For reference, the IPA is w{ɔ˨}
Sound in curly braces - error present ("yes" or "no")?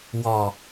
no